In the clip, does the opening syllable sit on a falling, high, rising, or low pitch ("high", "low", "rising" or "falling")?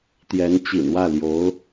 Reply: rising